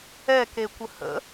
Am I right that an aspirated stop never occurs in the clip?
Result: yes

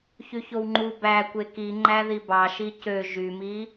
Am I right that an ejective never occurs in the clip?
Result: yes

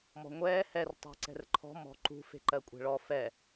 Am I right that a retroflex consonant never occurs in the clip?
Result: no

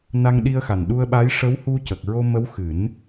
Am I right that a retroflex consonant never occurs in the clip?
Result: no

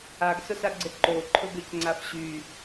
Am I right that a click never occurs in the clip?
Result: no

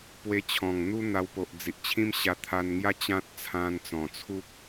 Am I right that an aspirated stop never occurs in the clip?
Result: no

